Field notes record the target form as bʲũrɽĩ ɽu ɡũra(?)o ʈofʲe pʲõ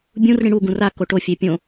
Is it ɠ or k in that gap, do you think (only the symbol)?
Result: k